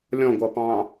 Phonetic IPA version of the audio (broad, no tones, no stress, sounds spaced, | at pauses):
lʲ ɔ̃ ɡʷ ʌ p ɑ̃